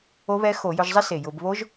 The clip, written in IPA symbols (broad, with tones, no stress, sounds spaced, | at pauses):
o˦˥ β ɛ˦˥ x o˧˩˧ j ʊ˧ ʒ zˤ ɪ˦˥ s e˨˩ j ʊ˧˩˧ b β o˦˥ ʒ